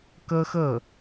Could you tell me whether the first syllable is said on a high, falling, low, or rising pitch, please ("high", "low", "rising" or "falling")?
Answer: high